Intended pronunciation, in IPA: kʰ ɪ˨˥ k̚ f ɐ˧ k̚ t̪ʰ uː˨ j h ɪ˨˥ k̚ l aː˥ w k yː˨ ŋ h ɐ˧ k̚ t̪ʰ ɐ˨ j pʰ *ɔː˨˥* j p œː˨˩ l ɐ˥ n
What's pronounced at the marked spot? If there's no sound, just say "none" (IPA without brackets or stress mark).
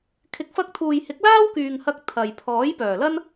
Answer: ɔː˨˥